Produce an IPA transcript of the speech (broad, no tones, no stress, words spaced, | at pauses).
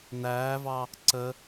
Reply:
næːvɑ | ǀə